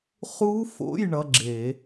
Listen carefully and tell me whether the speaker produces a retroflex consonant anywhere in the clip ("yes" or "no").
yes